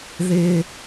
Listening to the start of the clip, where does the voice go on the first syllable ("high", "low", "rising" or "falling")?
low